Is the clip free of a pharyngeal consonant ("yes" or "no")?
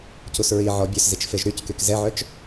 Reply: no